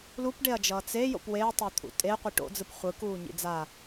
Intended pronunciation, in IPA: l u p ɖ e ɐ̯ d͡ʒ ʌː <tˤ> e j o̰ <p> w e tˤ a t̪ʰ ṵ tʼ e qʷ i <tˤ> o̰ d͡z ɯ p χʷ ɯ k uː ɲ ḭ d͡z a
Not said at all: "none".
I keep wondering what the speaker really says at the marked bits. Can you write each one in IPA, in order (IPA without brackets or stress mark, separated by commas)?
t͡s, p, ʈ